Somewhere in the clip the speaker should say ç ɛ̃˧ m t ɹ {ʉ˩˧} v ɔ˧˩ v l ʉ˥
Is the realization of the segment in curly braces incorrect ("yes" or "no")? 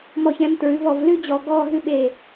no